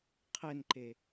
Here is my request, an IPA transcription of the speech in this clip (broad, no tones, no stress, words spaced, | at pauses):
qʰɘnǃe